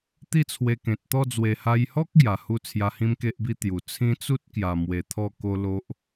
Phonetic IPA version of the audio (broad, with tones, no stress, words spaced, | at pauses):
t̪i˥˧t͡sʰwe˧kẽ˨t̚t̪ɔ˥˧ d͡zwe˨˩ha˧jhɔ˦k̚ ɡja˨˩hu˦ t͡sʰja˧hĩ˦mke˦ʔbi˦ t̪ju˨˩ t͡sʰĩ˦ t͡su˦t̚kja˨˩mwe˨˩ t̪ʰɔ˥˧ko˦lo˦ʔ